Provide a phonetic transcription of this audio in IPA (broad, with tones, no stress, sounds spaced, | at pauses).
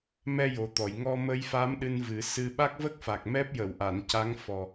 m ɛ˧ j o˨˩ t̪ ɔ˨˩˨ j ŋ ɔ˧ m ə˧ j f a˧˥ m ɗ ɨ˧ n v ɨ˨˩˦ s ɨ˧ ɓ a˦˥ k̚ v ə˦˥ k̚ f a˨˩ k̚ m ɛ˦˥ p̚ j ə˨˩˨ w ʔ a˨˩˨ n c a˧˥ ŋ f ɔ˨˩